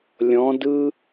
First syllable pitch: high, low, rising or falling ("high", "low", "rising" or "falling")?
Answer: rising